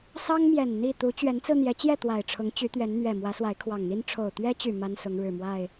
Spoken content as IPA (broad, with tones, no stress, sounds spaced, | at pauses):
s ɑ˦ ŋ m j ɛ˨˩ n n̪ i˥˨ t̪ u˨˦ t͡ɕ ɥ ɛ˨˦ n t͡s ɹ̩˧ n̪ j ɛ˨˦ t͡ɕ j ɛ˥˨ t̪ w a˨˩ ɪ̯ ʈ͡ʂʰ ʊ˨˦ ŋ t͡ɕ y˨˦ t̪ ɥ ɛ˨˦ n n̪ ɥ ɛ˨˩ m w ä˨˦ s w a˨˦ ɪ̯ kʰ w ɑ˨˩ ŋ n̪ i˦ n ʈ͡ʂʰ o˨˩ ʊ̯ t̪ ɥ ɛ˦ t͡ɕ y˨˩ m a˦ n s ʊ˨˦ ŋ ɻ ɻ̩˨˩ m w a˥˨ ɪ̯